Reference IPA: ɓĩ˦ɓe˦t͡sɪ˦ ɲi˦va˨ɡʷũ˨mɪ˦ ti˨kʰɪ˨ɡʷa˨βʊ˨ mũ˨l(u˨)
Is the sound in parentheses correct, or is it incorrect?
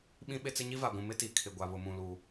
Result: correct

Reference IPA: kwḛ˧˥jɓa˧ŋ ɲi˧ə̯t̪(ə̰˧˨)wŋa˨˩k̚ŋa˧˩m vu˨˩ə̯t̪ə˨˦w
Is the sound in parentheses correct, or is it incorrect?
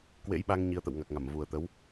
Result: correct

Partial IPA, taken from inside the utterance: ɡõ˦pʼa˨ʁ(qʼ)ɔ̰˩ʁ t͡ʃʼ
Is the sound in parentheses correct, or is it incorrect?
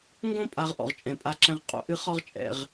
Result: incorrect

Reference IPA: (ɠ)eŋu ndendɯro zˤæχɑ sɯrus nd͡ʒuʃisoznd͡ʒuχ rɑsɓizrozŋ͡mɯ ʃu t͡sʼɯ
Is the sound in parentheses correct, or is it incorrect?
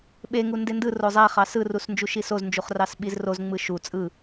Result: incorrect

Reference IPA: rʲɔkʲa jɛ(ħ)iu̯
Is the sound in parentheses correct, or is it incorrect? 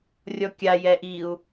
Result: incorrect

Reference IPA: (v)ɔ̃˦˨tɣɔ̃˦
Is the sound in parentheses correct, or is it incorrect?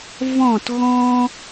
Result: correct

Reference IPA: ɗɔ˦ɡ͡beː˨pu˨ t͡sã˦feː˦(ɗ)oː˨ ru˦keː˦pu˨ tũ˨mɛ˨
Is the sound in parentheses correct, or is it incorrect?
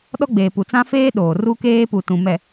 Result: correct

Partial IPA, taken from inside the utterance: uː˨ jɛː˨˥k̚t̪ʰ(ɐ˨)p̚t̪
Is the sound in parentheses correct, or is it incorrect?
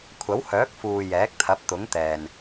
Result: incorrect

